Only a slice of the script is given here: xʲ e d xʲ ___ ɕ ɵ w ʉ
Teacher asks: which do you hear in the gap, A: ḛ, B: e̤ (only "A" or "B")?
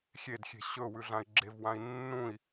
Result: B